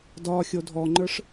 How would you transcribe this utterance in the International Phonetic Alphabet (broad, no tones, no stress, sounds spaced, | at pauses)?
d ɒ xʲ o dʱ ɔ ŋ͡ǃ ə˞ ʂ